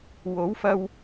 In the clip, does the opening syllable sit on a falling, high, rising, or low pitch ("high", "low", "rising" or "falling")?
rising